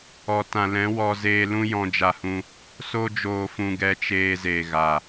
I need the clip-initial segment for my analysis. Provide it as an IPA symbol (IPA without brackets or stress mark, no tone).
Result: ɔ